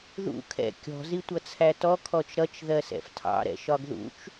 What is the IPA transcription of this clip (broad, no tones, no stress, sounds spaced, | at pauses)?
ð ṵ kʰ ɛ̰ kʲ ɔ̤ z i tʷ ʌ t͡sʰ æ t ɔ kʰ ɔ t͡ʃ ɾ ʌ t͡ʃ ð ɜ s ɛ̰ f tʰ ɑ̰ ɾ ɛ̰ ʃ ɒ ɡ ð ṵ t͡ʃ